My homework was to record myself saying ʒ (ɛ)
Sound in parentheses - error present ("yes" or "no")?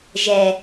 no